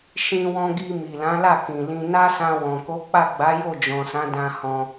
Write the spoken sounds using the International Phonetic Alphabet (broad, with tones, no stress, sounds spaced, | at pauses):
ʃ ĩ˧ w ɔ̃˧ ɡ i˧ m i˨ l ã˨˦ l a˦˨ k ĩ˨ l ĩ˧ n a˦ s ã˧ w ɔ̃˨ k o˨˦ k͡p a˦˨ ɡ͡b a˨˦ j o˦˨ d͡ʒ ɔ̃˨ s ã˨˦ d ã˧ h ɔ̃˧